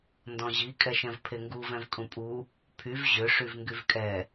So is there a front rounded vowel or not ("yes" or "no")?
yes